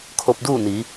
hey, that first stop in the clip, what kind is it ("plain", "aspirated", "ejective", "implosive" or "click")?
aspirated